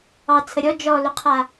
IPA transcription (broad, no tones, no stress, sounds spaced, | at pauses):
ɑ t͡sʰ ə ɾʲ ɔ d͡ʒ ɔ l ʊ qʰ a